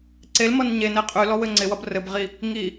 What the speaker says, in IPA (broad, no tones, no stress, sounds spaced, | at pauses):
ǀ e l m ʌ n ɲ e n e qʼ y l ɔ w ɘ ŋ͡ǀ ɪ w ʌ b r ɘ b ʁ i | ŋ i